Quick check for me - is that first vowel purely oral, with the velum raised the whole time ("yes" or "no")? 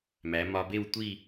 yes